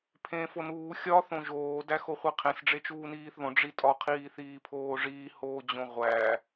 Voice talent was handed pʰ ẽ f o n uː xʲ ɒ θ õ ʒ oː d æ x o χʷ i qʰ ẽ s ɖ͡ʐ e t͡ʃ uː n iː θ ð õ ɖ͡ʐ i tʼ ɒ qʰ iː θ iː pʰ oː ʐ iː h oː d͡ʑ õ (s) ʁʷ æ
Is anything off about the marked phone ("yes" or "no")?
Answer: yes